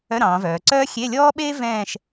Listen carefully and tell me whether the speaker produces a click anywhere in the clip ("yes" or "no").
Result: yes